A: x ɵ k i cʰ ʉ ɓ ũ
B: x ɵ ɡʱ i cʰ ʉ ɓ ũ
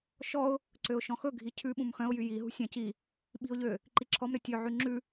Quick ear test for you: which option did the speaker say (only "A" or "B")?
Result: B